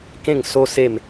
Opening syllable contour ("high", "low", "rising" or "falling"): falling